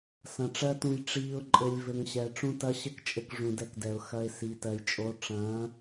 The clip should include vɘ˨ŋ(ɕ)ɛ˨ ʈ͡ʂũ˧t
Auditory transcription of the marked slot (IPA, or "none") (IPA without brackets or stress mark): ɕ